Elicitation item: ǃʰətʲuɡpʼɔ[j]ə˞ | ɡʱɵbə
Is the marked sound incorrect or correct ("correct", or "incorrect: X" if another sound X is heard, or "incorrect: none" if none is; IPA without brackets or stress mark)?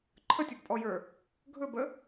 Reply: correct